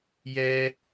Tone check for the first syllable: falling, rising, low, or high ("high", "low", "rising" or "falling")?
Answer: high